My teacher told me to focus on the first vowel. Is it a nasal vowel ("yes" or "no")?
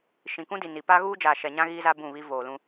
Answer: yes